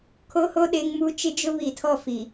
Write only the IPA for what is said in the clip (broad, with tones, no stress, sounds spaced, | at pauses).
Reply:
kʰ o˦ h o˦ ɗ e˦ ŋ m u˦ t͡ʃ ɪ˦ d͡ʒ ʊ˦ β i˨ tʰ ɔ˦˨ f i˨